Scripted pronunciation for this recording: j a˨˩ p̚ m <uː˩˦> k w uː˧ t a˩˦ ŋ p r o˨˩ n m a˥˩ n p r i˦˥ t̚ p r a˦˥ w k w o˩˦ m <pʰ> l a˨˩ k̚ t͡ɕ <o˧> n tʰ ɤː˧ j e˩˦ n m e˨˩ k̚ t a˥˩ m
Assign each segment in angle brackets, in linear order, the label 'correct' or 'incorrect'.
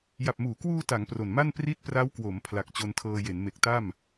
correct, correct, correct

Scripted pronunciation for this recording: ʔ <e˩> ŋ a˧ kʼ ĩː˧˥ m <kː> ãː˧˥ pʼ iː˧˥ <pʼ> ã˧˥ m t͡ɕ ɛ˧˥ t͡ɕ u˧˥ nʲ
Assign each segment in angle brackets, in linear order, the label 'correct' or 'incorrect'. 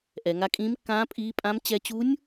incorrect, correct, correct

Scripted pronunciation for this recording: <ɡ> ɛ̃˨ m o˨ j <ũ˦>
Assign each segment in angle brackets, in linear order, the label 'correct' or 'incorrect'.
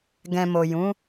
correct, incorrect

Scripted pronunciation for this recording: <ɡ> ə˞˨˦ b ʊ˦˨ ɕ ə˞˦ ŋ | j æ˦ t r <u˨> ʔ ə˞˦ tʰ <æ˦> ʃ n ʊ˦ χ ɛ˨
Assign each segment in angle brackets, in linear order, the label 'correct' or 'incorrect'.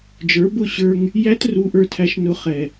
incorrect, incorrect, correct

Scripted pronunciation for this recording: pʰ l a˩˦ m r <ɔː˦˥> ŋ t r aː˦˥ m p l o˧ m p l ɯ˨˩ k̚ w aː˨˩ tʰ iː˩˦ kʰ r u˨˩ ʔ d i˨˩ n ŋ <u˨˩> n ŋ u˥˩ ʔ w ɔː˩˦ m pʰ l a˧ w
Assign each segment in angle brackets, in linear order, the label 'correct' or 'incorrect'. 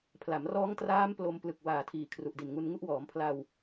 correct, incorrect

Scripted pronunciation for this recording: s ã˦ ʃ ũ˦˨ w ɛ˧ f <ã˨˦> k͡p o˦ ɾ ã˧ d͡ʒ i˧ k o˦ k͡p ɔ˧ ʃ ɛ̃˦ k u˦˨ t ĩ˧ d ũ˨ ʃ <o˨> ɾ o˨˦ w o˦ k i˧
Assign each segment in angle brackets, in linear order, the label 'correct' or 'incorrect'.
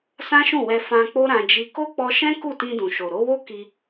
incorrect, correct

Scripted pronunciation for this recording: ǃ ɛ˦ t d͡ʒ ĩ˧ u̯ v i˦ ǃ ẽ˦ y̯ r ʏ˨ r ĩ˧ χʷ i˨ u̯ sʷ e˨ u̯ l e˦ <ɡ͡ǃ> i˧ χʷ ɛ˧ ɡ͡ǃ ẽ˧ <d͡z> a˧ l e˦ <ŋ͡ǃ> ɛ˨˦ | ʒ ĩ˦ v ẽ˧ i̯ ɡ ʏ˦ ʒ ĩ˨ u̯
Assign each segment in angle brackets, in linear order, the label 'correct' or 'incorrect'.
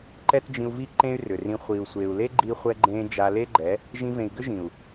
correct, incorrect, incorrect

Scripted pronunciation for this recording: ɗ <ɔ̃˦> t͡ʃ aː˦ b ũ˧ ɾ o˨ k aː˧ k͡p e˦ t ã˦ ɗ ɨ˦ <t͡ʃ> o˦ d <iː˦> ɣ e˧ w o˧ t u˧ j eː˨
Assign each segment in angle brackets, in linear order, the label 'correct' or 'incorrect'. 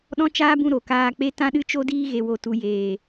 correct, correct, correct

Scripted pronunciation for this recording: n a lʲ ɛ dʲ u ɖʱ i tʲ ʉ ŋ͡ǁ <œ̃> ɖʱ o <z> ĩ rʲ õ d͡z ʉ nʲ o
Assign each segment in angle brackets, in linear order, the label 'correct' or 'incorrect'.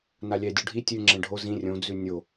incorrect, correct

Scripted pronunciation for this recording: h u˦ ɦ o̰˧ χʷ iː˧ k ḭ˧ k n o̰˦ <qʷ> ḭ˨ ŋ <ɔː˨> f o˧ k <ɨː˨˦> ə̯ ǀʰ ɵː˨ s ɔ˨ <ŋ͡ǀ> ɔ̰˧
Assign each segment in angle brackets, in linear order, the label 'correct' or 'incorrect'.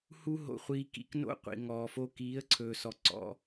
correct, correct, incorrect, incorrect

